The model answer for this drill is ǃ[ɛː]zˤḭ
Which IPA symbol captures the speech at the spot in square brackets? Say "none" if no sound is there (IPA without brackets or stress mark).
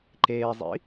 eː